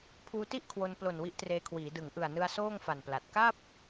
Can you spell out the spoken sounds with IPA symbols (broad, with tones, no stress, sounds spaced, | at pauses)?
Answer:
pʰ uː˧ t i˥˩ ʔ kʰ w o˧ n p l o˨˩ n w i˦˥ ʔ t r eː˧ kʰ w iː˩˦ d ɯ˩˦ ŋ ʔ ɯ˨˩ a̯ n ɯ˧ a̯ s oː˥˩ ŋ f a˨˩ n p l a˨˩ t̚ k a˥˩ p̚